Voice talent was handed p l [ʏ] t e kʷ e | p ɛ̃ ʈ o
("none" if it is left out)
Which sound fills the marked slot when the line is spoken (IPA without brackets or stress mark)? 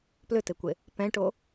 ʏ